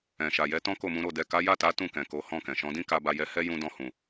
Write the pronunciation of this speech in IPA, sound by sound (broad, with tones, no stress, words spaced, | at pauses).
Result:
ɛ̃˨ʃa˨jɛ˨˦ tɔ̃˦ko˦˨mũ˨˦ɾo˦˨ dɛ˨ka˨˦ja˦˨ta˨˦ tũ˦˨kɛ̃˨ko˨˦ hɔ̃˦˨kɛ̃˨ ʃɔ̃˨˦dĩ˦ka˧ ba˧jɛ˧hɛ˦ jũ˦dɔ̃˧hũ˨